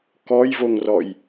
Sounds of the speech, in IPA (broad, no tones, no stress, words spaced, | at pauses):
kɔjvoŋrɔj